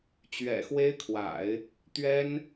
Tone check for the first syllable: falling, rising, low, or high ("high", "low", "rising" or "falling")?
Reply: low